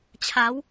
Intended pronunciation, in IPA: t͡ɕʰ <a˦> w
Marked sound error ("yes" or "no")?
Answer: yes